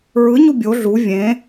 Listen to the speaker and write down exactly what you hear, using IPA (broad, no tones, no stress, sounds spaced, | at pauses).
ɹ ɯ ɲ u bʲ o ɮ u vʲ ẽ